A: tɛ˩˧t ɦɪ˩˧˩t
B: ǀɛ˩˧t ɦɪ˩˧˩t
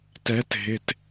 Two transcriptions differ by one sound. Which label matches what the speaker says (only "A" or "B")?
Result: A